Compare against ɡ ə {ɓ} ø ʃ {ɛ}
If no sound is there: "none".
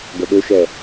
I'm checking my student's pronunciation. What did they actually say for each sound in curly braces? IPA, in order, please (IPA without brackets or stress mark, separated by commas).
ɓ, ɛ